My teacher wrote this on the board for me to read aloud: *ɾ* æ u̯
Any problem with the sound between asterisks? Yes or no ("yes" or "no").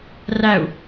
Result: yes